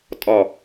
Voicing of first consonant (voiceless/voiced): voiceless